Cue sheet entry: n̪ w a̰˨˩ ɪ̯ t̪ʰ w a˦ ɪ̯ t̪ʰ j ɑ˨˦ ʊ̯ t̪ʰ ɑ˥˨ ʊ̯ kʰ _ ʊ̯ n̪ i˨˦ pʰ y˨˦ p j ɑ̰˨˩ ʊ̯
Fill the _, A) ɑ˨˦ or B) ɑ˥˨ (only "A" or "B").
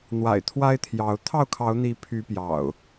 A